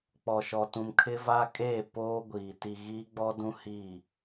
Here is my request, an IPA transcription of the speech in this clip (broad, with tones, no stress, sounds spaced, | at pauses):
k͡p ɔ˨ ʃ ɔ˨ t ũ˨ m kʰ ɪ˦ v a˦ kʼ eː˦˨ p oː˦ ɡʷ iː˨ t i˨ ɣ iː˦ ɡ͡b ɔ˦ d ũ˦ h iː˦˨